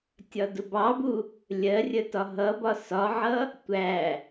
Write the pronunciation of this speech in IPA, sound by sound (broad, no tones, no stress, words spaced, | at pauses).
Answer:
tʲɒdʊbɑbu | lʲɜrʲə tɒɦʌbɒ sɒʕʌ | tʷæ